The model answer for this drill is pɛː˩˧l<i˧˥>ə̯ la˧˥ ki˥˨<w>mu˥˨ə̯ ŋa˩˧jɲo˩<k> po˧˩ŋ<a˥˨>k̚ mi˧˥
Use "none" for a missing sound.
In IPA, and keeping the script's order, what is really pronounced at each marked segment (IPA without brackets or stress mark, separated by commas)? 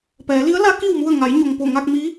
i˧˥, w, ŋ, a˥˨